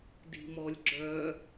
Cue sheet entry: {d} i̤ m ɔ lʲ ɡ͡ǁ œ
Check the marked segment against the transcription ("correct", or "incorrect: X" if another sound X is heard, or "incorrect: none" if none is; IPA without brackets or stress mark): correct